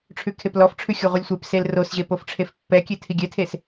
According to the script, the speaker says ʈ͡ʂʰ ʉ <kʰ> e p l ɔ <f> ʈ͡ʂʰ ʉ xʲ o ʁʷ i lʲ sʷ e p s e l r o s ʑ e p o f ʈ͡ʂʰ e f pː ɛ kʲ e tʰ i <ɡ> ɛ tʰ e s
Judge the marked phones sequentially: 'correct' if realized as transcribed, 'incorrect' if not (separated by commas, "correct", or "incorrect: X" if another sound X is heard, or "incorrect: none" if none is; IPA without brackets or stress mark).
correct, correct, incorrect: ɡʲ